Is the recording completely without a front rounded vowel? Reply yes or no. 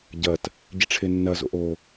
yes